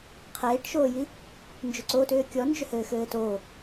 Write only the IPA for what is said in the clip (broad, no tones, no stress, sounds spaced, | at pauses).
qʰ eː ʈ ʃ oː j i | n d͡ʒ ʏ ǀ o t ʏː kʲ ɔ n d͡ʒ ʏ h ɘː x ɘː t o